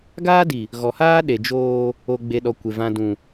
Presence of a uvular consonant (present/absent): absent